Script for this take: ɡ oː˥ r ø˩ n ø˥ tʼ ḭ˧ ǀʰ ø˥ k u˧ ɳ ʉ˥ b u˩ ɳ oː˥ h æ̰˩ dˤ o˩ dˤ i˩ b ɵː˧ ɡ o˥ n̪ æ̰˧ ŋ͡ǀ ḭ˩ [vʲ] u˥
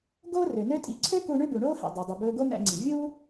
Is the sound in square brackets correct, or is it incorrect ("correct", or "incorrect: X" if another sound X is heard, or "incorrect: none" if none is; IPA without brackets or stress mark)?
correct